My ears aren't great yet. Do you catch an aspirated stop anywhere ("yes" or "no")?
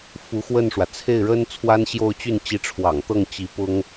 yes